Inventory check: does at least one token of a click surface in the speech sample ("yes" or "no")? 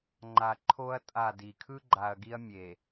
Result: yes